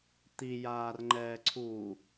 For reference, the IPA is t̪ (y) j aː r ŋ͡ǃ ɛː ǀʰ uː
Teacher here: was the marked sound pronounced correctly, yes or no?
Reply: no